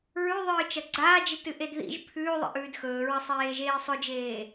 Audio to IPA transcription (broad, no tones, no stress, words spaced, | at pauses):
ɹʉðˤɨː t͡ʃɐɡ͡ǀaːd͡ʒitɨ ʔedðḭʒ pʰʉːðˤḭʔʉːd xɵːɹɐsˤeːʒeː sˤɵd͡ʒeː